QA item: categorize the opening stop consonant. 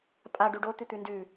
ejective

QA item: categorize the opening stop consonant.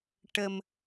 plain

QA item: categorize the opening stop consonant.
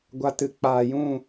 plain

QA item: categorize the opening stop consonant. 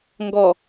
plain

